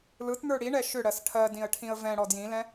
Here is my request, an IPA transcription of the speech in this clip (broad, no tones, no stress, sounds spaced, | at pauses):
l ɯ t n̪ ə˞ ɽ i ɳ ɛ ʃ ʏ ɽ ɜ s ʈʰ ɜ d ĩ ə̯ ʈʰ ĩ ə̯ v ɛ̃ ɽ ɔ d j ĩ l ɛ̃